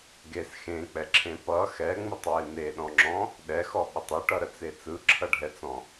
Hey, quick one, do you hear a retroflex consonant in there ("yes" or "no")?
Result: yes